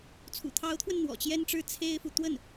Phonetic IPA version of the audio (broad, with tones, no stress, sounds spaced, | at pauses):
t͡sʰ ṵ˨˩ t̪ʰ ɑ˧˥ ʊ̯ t̪ʰ w ə˧ n n̪ w ɔ̰˨˩ t͡ɕ j ɛ˥ n ʈ͡ʂ ɻ̩˥˩ t͡sʰ e˥ ɪ̯ f u˨ t̪ w ə˥˩ n